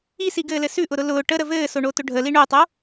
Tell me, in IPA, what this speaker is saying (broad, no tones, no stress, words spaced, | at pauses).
isiɡɘːlɘ sʉʔʊɾʊ lʊː ʈəɾə vɘːsoɳotʊ ɖʱəli ɳotˤo